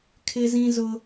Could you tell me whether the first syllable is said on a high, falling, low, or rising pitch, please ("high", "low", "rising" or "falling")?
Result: high